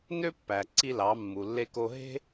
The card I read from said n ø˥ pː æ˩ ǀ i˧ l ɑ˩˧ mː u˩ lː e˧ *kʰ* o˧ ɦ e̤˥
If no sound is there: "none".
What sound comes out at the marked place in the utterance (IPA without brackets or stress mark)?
k